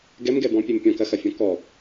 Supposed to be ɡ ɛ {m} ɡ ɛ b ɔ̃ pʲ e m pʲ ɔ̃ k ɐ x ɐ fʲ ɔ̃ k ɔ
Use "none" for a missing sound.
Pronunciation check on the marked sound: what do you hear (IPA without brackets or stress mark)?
m